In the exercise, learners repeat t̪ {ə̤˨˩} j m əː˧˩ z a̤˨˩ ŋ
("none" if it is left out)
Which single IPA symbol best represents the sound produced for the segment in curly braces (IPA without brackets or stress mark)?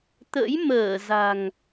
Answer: ə̰˧˥